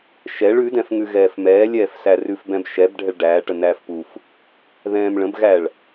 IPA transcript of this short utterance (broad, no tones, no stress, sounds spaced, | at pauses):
ʃ ɛ ɭ ʉ d ɛ̃ f ŋ ʉ ɣ ɛː f m ɛː lʲ ɛː f s æ r ʉ f b ɛ̃ b ʃ ɛ b ɖʱ ɛ ɭ ɖ æː ʈ ə n æː f p u f | ð ɛ̃ː m ɭ ə̃ b ɣ æ ɭ